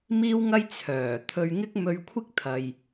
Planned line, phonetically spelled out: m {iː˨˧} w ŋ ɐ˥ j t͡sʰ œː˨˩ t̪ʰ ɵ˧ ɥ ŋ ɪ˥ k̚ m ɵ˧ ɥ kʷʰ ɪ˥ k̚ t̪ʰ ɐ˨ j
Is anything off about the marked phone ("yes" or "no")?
yes